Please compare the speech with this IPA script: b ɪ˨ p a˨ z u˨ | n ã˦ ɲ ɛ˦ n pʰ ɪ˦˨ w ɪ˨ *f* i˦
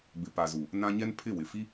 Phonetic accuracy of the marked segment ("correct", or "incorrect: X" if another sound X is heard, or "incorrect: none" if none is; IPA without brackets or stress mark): correct